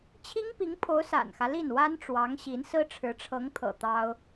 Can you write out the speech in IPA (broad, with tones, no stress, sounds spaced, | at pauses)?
t͡ɕʰ i˥ ŋ p i˧˥ ŋ pʰ o˧˥ ʊ̯ s a̰˨˩ n x ä˦ l i˥˩ n w a˥ n ʈ͡ʂ w ɑ˧˥ ŋ ɕ i˧˥ n s ɹ̩˥ ʈ͡ʂʰ ɻ̩˧˥ ʈ͡ʂʰ ɤ˧˥ ŋ t̪ʰ ɤ̰˨˩ t̪ ɑ˥ ʊ̯